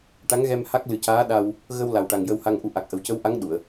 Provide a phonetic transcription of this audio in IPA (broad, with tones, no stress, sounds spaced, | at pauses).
ʈ a˧˥ ŋ ɣ ɛ˧ m h a˦˥ k̚ l ɨ˨˩ c aː˧˥ ɗ a˧ w | ɣ ə˧ w l a˨˩ w ʈ a˨˩ ŋ j ə˧ w h a˧ ŋ ʔ u˧ ʔ a˨˩ k̚ ʔ ə˨˩ w c ə˧˥ w ʔ a˧˥ ŋ ɗ u˨˩˨ ə̯